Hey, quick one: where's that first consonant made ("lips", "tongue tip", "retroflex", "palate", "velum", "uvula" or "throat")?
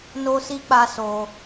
tongue tip